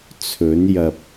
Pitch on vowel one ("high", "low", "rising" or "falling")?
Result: rising